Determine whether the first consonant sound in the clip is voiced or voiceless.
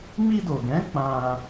voiced